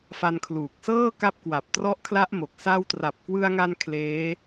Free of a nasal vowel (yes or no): yes